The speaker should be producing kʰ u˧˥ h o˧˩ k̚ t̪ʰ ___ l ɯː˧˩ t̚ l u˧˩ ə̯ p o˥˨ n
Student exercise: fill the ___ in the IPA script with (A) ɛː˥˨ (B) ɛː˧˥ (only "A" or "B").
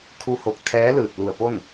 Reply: B